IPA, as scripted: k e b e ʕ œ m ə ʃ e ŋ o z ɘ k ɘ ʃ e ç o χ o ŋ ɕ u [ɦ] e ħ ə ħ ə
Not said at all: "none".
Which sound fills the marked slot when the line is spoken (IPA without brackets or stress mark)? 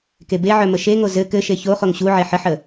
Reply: ʕ